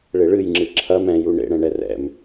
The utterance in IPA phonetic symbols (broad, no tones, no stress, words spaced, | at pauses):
ɭeɭɨjŋ͡ǁɨ ǁʰɐm ɛ̃ju ɳḛɽɛ̃ɳɛ rɛ̰m